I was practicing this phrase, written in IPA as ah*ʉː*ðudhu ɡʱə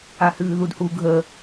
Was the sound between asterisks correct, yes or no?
yes